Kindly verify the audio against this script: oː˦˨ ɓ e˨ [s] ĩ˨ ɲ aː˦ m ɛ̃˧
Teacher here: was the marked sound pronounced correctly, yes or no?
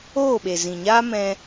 no